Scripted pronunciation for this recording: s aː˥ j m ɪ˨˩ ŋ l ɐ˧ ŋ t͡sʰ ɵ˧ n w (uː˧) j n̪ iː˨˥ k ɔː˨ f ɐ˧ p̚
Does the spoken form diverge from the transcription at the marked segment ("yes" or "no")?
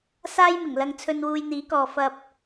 no